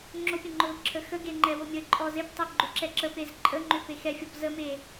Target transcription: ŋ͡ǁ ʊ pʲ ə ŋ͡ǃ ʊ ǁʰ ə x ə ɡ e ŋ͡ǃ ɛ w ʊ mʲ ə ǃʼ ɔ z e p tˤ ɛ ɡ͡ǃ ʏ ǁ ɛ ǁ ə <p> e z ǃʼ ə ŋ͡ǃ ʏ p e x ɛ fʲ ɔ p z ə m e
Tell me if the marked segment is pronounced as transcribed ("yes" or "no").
yes